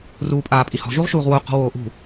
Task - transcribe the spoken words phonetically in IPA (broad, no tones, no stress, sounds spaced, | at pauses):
r uː pʼ aː pʼ i h ɔ̤ ʒ u ʁ ʃ uː ʁ w o q ɔ̤ w oː ʔ ṳ